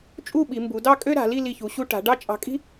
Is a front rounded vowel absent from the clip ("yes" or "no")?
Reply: no